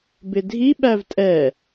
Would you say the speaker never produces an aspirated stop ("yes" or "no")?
yes